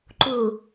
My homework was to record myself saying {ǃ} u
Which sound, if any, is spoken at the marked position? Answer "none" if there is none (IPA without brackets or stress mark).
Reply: ǃ